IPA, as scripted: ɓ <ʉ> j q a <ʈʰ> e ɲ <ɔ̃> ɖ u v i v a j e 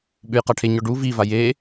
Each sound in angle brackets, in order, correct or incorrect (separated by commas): correct, correct, incorrect